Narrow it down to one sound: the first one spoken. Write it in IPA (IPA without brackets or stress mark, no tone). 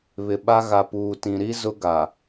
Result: β